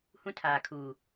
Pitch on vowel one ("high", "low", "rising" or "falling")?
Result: high